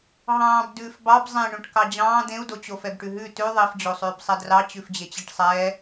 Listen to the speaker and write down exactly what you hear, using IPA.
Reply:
ɦ ɑ̃ː b d ʉː f b ɑ b zˤ ẽ ɳ õ ʈ k ɑ d͡ʑ ɑ̃ː d̪ ẽ u̯ d o t͡ɕ o f ɛ b ʈ ʉ ɦ ʉ t ʉ ðˤ i f d͡ʑ o sˤ ʉː b sˤ ɛ d r ɑ t͡ɕ ʉ f d͡ʑ e t͡ɕ i ʈ sˤ ɛː

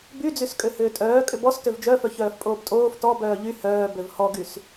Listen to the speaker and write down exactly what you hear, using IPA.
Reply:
b y d͡z y s kʼ ø h ʏː tʼ œː kʼ ʏ b ɔ s t ø v d͡ʒ œ f œ ç œː f pʼ oː p tʼ oː f t ɔ b œː ʎ y h œː b ø v h ɔ ɡ y s

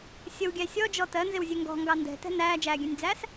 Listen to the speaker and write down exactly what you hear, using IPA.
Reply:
sʲ ə w ɡʲ æ sʲ ɔ d͡ʒ ɔ t ɜ n z ɪ w zʲ ɛ ŋ ɡ ɔ̤ ŋ ɡ ɑ n d ɛ̤ t ɛ̤ n æː d͡ʒ æː ɡʲ ɛ̃ nʲ d͡z æː s

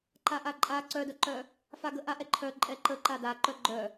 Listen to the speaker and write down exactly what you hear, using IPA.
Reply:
ǃ a ʔ a ǃʼ a ǀ œ d œ ǃ œ | f a ɡ ə ʔ a ʔ ɛ ǃʰ œ ǃʼ ɛ ǃ ə ǃ a d a ǃ œ ɡ͡ǃ œ

